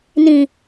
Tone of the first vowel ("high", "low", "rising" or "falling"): low